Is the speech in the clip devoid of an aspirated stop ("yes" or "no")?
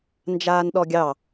yes